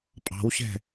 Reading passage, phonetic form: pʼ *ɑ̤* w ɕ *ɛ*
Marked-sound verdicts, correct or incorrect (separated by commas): correct, incorrect